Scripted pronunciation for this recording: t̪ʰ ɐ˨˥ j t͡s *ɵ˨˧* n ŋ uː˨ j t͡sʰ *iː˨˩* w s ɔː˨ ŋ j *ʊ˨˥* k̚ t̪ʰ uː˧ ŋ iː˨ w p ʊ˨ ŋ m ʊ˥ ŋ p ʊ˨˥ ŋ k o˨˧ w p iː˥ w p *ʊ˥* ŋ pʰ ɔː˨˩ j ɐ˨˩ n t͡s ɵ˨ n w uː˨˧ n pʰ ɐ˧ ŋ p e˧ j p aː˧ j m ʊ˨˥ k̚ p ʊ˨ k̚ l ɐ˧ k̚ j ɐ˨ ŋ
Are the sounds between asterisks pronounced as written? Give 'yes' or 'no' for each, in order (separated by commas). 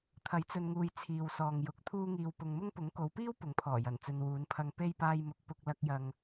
no, no, yes, no